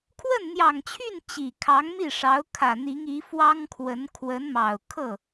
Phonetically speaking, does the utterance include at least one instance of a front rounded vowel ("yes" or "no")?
yes